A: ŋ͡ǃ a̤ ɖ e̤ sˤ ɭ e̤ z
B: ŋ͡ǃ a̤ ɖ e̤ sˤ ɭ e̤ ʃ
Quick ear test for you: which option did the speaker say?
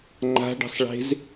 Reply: A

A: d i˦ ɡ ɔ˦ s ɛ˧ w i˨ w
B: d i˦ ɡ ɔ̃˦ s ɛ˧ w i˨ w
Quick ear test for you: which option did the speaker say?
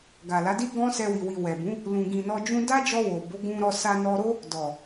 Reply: B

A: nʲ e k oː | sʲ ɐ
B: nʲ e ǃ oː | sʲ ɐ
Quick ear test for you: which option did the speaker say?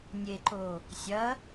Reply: B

